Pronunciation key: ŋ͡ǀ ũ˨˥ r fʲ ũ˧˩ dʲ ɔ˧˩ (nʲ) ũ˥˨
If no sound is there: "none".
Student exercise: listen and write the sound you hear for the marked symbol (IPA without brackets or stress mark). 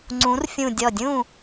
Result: dʲ